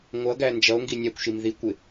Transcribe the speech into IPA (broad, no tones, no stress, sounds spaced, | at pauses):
ŋʷ ʌ ɡ æ n d͡ʒ ʌ o̯ ŋ ɡ i nʲ æ kʷ ʃ i m ð i kʷ ɪ